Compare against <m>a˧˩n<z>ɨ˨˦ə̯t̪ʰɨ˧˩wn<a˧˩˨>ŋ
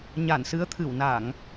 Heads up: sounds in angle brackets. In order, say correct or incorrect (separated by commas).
incorrect, incorrect, correct